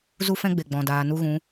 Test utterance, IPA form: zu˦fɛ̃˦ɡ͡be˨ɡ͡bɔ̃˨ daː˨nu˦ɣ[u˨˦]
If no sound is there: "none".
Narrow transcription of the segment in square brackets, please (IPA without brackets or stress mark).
ũ˨˦